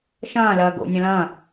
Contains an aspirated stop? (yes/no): no